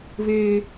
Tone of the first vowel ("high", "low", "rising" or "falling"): high